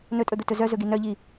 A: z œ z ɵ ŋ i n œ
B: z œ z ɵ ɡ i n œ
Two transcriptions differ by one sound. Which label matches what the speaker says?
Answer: B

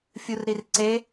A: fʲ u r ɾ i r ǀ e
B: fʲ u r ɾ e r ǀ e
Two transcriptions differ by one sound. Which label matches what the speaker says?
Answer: A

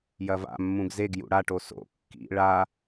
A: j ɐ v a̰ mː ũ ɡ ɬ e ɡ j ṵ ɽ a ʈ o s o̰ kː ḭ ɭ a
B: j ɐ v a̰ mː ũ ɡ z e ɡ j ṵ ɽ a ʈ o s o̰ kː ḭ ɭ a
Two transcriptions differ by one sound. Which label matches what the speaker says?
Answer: B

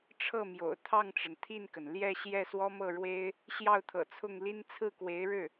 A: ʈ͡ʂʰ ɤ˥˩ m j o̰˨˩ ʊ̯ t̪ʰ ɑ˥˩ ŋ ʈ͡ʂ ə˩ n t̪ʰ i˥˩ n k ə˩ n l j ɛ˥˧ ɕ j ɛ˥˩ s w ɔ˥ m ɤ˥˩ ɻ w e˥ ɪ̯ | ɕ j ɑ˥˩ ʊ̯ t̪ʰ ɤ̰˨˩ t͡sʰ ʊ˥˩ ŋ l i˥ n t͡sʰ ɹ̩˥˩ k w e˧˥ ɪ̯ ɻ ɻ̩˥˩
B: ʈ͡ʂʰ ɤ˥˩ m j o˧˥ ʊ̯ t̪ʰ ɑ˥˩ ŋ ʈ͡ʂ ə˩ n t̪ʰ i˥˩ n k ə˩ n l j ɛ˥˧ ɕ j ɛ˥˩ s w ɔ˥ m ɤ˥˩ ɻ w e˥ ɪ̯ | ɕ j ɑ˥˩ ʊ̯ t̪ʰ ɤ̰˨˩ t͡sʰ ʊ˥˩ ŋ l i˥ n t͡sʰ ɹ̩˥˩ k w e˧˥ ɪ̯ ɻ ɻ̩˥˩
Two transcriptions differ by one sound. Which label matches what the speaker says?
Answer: A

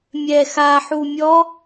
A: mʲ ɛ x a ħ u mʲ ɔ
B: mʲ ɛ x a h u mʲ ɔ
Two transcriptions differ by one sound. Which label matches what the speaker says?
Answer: A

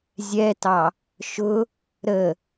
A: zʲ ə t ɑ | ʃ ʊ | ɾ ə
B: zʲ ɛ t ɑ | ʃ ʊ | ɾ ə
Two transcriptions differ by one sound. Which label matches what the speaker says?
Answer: B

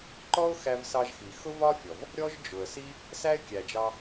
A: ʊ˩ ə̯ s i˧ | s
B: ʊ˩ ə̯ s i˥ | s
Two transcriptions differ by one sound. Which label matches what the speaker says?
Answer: B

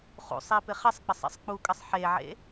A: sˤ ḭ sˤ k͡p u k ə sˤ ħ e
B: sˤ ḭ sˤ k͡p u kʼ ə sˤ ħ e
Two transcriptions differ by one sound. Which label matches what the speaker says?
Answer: B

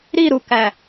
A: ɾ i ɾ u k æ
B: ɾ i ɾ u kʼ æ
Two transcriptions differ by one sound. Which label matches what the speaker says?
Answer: A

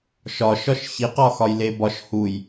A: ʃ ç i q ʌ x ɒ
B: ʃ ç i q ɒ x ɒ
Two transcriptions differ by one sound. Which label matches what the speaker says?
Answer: B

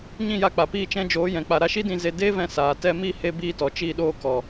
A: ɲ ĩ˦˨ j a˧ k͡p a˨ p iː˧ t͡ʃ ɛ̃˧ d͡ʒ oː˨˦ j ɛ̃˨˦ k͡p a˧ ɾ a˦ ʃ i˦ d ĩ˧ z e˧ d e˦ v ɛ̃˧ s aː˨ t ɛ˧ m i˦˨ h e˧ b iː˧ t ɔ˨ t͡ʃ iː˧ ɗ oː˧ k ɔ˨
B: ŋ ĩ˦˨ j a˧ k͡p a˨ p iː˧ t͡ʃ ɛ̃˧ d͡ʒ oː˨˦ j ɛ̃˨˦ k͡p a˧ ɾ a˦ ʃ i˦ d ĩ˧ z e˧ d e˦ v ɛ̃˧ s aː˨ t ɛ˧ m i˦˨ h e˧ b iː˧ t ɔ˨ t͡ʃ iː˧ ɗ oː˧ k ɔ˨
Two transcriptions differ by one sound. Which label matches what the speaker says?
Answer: A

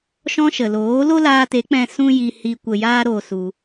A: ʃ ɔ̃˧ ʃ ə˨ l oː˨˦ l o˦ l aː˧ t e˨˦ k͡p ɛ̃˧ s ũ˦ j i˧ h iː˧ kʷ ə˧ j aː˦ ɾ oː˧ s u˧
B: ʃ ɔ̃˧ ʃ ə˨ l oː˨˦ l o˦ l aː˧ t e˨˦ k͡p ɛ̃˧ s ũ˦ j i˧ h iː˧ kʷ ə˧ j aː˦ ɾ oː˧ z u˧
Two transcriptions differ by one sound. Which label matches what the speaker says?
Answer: A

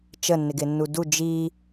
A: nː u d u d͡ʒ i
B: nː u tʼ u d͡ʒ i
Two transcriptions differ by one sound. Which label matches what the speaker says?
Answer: A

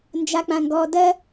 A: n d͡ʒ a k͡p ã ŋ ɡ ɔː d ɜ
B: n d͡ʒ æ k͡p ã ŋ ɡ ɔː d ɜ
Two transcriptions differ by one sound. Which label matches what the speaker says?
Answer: A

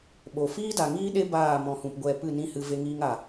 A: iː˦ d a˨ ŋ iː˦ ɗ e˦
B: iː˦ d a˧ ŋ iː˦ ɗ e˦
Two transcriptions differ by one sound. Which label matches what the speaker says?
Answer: A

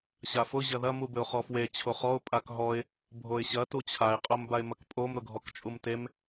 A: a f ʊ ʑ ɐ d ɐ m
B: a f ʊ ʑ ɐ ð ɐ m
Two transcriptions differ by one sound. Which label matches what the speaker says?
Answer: B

